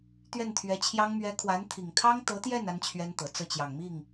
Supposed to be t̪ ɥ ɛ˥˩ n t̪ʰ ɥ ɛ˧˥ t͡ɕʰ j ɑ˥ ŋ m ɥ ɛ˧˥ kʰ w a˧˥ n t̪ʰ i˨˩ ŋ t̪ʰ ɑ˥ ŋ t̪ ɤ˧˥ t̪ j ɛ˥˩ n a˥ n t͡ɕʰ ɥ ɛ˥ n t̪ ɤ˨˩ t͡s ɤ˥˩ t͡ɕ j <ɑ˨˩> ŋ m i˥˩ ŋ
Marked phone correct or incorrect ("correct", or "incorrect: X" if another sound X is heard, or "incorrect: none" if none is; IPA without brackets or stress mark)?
correct